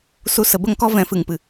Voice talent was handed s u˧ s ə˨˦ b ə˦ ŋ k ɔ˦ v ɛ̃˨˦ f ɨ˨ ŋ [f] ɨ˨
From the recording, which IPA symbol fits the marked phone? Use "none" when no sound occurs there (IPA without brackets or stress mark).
p